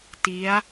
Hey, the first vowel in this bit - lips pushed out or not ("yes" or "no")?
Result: no